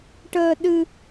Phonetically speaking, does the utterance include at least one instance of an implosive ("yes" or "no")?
yes